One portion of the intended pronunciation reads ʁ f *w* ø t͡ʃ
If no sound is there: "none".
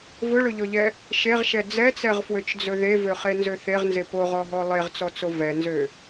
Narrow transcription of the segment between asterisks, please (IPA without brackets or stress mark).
w